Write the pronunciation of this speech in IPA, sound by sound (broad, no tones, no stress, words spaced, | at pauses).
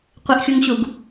qʷɪʔxʲuŋɕuɡ